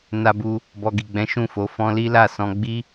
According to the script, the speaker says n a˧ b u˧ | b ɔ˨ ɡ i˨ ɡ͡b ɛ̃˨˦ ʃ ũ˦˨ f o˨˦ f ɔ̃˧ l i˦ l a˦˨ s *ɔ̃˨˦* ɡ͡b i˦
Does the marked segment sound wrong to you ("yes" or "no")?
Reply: yes